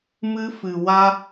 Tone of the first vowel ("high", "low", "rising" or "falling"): high